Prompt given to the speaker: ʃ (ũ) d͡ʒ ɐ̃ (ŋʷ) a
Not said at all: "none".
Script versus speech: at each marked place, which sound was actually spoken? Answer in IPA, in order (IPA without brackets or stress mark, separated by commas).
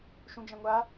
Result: ũ, ŋʷ